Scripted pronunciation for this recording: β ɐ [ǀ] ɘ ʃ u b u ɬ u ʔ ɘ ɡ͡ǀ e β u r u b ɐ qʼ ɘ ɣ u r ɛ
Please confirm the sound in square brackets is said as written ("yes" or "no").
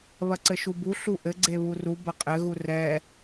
yes